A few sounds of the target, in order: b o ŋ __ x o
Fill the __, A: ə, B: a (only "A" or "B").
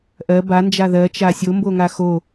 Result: B